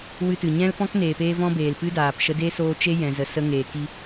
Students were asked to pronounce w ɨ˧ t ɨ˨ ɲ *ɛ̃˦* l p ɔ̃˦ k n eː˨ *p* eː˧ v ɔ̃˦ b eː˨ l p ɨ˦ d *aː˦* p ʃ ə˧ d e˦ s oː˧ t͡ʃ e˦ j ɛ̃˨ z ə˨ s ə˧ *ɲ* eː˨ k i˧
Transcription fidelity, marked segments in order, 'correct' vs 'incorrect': correct, correct, incorrect: aː˨, incorrect: ŋ

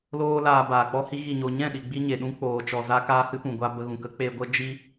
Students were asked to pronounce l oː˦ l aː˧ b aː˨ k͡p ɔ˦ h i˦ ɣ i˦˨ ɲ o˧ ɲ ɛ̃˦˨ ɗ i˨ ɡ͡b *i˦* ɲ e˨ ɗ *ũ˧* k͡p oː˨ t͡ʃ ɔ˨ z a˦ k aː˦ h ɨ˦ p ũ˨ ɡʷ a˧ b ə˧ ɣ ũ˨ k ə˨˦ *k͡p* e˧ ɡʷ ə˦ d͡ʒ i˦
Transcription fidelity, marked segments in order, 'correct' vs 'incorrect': correct, incorrect: ũ˦, correct

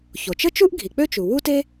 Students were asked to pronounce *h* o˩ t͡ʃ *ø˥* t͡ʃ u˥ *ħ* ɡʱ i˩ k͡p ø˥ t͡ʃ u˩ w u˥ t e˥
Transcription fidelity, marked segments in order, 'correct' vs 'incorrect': incorrect: ç, incorrect: ə˥, incorrect: ʔ

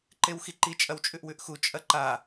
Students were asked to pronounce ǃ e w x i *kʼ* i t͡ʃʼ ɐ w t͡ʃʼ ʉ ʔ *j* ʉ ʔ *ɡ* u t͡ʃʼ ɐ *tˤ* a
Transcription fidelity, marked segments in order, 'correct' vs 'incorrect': incorrect: ǃ, incorrect: w, incorrect: x, incorrect: ǃ

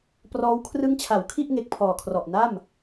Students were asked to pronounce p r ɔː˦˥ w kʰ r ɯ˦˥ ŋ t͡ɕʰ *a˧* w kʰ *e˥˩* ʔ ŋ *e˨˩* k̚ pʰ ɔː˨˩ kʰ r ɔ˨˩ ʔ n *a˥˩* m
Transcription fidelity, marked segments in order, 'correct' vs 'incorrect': incorrect: a˩˦, incorrect: i˥˩, correct, correct

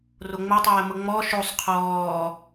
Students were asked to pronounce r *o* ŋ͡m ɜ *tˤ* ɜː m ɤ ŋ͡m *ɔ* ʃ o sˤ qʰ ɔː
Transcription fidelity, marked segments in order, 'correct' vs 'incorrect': correct, correct, correct

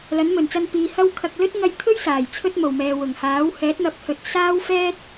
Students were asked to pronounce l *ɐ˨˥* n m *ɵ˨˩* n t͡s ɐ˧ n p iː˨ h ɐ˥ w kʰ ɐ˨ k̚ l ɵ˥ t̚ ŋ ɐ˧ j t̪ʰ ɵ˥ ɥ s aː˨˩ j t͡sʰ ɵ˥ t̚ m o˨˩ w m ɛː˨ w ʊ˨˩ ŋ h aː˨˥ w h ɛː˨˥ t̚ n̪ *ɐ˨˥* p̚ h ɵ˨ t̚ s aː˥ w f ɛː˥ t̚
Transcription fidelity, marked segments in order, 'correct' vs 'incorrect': correct, correct, correct

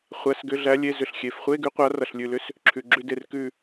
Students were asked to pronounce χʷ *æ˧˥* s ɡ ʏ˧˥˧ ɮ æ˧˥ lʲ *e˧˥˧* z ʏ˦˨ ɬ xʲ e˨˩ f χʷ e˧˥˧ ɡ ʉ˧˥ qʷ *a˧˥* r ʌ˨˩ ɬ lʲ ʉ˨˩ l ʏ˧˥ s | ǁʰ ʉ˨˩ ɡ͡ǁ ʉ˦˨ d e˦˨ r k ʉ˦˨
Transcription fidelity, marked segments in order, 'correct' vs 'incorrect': incorrect: æ˧˥˧, correct, correct

